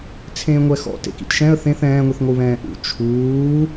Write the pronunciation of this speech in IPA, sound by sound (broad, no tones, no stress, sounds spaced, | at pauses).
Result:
t͡sʰ ẽː ŋʷ ɛ x ɔ̰ t ḛ k ḭ t ʃ ɛ̃ ə̯ θ ẽ θ ɛ̃ː ŋʷ i θ ŋʷ ɯ β ɛ̃ː ʔ ṵ t͡ʃʰ uː